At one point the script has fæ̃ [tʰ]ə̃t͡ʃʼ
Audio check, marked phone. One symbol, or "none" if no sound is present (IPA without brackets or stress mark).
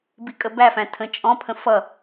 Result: tʰ